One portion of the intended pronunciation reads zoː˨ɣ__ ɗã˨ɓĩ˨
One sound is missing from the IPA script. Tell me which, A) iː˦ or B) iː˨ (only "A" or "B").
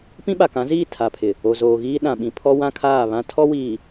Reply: A